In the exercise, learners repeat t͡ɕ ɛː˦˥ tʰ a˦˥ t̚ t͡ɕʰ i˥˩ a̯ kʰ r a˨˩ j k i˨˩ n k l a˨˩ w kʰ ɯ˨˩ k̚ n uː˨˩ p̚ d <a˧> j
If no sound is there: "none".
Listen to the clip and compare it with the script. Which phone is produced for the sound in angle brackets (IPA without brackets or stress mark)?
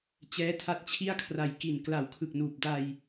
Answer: a˧